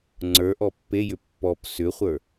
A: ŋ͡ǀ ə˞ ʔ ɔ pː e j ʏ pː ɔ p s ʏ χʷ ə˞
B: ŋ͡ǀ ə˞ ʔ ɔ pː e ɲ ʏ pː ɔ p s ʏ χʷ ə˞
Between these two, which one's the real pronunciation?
A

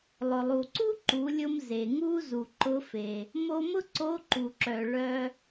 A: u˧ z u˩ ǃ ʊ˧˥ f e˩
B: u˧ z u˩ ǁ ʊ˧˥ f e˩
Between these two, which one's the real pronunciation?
A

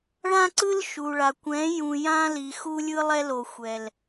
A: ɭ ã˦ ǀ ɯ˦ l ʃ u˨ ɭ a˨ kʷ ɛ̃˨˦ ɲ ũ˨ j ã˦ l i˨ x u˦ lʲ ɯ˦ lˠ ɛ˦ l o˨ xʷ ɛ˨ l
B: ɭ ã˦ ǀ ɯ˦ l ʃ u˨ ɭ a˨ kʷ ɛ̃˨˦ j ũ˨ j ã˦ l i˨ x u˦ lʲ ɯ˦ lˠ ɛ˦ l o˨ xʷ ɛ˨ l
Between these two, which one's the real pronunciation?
B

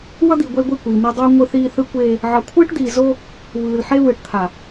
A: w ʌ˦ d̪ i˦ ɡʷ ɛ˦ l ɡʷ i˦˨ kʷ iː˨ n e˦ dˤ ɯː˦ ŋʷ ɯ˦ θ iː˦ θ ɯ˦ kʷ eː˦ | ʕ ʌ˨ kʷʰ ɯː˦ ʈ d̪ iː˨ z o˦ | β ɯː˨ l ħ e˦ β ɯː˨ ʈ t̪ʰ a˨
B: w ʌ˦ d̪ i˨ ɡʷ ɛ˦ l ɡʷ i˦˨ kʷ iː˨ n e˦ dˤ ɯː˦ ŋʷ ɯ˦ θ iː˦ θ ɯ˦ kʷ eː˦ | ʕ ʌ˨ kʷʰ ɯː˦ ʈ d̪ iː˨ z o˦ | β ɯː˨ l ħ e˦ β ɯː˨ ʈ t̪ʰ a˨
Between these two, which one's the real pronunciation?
B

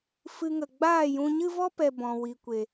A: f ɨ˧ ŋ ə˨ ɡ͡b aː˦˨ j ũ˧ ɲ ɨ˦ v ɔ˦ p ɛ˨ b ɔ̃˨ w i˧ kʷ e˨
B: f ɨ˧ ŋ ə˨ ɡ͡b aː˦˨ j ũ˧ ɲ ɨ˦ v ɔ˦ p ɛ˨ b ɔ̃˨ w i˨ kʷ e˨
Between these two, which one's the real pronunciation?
B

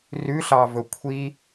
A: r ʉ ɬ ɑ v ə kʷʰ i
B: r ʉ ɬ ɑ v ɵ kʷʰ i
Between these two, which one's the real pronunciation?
B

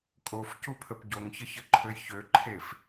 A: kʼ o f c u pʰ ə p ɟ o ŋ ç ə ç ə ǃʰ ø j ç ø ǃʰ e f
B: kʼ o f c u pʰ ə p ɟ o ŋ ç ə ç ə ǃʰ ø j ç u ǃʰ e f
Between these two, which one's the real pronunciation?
A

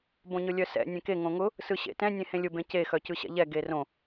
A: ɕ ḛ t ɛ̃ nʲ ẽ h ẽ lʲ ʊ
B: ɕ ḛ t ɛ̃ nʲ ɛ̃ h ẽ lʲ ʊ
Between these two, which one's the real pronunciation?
A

